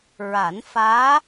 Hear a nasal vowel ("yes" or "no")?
no